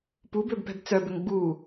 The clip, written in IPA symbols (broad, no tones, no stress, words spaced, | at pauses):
pubøbpɛ̤b t͡sœbʏŋ ɡ͡bu